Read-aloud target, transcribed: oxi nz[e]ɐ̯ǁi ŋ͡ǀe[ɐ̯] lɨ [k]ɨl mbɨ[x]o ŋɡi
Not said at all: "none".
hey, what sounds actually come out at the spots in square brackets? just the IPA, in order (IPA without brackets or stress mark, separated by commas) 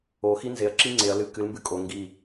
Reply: e, ɐ̯, k, kʼ